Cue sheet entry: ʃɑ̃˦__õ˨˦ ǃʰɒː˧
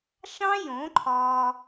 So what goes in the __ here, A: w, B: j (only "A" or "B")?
B